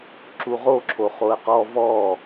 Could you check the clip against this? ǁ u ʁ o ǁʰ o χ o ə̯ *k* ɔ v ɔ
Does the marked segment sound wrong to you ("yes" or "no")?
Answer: yes